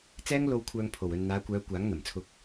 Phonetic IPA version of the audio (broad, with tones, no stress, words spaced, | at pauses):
t͡sɛː˥ŋ lo˧wkʷʰœː˧ŋ pʰo˨wɵ˧n n̪aː˨˧kʷœː˨˧ kʷaː˨˥ŋn̪ɐ˨˩mt͡sʰʊ˧k̚